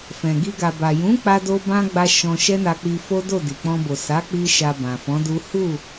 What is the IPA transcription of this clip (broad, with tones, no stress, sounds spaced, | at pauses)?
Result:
f ɛ̃˨ ɡ i˧ ɡ a˨ b a˨ j ũ˨˦ k͡p a˧ d o˧ b ã˧ ɡ͡b a˧ ʃ ɔ̃˧ ʃ ɛ˦ n a˧ k͡p i˧ f o˦ d o˦˨ d i˨ k͡p ɔ̃˧ b o˨ s a˨˦ k͡p i˧ ʃ a˨ b ã˨ f ɔ̃˨˦ d u˦ h u˦˨